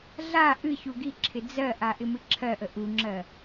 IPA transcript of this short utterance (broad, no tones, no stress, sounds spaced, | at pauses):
ɮ a ʔ ɨ ç u ɡ i ǁʰ ɪ d͡z ɜ ʔ a ʔ ɪ m ɨ ǁʰ ɜ ʔ ə ʔ u ŋ͡ǁ ɜ